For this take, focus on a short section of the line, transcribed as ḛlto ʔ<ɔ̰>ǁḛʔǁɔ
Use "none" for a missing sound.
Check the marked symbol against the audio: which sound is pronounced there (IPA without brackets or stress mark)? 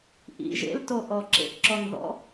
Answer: ɔ